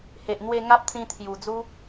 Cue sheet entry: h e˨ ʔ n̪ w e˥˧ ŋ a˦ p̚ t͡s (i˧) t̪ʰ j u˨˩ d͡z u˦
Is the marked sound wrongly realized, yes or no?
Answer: yes